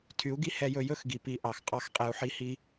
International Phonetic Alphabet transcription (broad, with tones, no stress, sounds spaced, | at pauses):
tʰ y˨˦ u̯ ɡ i˦ h ɛ˧ j ɵ˧ j ɵ˦ x ɡ i˨ p i˨˦ ʔ ɑ˨ x qʼ ɑ˦˨ x qʼ ɛ˧ u̯ ħ i˦ h i˦